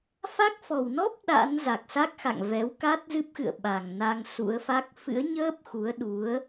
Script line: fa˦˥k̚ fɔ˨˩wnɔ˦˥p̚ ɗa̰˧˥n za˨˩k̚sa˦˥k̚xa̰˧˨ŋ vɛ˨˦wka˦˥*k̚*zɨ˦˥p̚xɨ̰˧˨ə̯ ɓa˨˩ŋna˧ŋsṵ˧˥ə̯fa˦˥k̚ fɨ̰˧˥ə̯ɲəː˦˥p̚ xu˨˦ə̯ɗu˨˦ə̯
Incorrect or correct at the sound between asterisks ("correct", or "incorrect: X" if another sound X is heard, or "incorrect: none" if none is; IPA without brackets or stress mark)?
incorrect: t̚